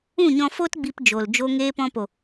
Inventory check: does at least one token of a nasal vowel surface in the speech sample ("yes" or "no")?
yes